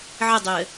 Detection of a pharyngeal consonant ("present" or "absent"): present